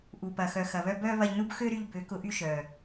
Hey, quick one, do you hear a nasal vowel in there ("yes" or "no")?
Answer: no